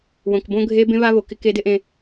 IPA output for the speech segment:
wõ˨kbõ˦ɡʱe˦ bẽ˦βa˦βo˨kɪ˦ ke˦dɪ˦ʔẽ˦

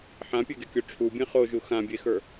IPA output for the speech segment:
ħãpʲeɡekʲo ʈ͡ʂʰubʲẽ χoʒu xãbʲexə˞

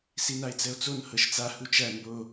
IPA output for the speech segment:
sinae̯t͡sɛo̯t͡son hɤʃt͡sa hut͡ʃæ mbo

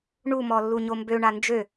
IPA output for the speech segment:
ɳumɔ lːuɲombøɳa nd͡ʒø

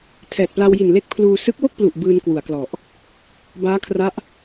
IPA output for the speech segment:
tʰɛː˨˩t̚pla˧wji˨˩nle˦˥k̚ pʰluː˧ sɯ˦˥k̚wo˥˩k̚plu˨˩ʔ bɯː˧nkwu˩˦a̯klɔ˨˩ʔ | baː˦˥kʰra˦˥ʔ

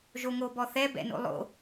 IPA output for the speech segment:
ʒoŋobɔθɛ bɛ̰no̰lˠo̰

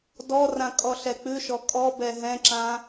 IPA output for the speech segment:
dɔrãkʼɔɬɛ k͡pʉʃɔ kʼɔbɛ ɦɛ̃ǁã

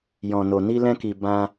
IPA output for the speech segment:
jɔ̃˧no˧ ni˦lɛ̃˦ki˧ bã˦

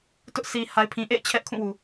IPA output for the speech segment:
tʊ˦ʔ si˨ ha˨ɪ̯pʰĩ˨ʔḛ˦˨ɪ̯ t͡ɕʰɛ˦ʔkʰũ˦˨wu˨

